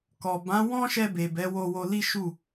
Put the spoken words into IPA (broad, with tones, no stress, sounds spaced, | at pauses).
k ɔ˨ b ã˨˦ w ɔ̃˦ ʃ ɛ˧ b e˨ b ɛ˨˦ w o˧ w o˧ l i˦ ʃ u˦˨